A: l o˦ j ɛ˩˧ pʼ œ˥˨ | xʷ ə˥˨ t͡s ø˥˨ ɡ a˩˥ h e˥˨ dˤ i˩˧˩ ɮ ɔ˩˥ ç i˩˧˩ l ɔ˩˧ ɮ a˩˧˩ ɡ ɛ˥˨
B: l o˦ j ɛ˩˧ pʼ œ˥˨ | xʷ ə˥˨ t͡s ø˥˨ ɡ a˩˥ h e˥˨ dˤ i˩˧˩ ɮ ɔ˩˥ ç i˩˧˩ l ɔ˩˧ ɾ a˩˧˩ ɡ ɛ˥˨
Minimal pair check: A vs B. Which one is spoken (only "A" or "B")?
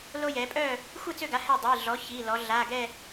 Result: A